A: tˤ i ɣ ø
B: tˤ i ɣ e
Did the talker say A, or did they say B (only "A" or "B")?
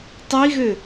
A